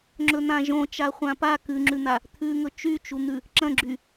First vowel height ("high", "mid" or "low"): mid